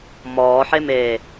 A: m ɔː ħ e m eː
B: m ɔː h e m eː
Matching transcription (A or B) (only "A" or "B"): A